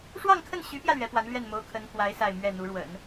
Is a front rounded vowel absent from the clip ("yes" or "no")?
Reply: no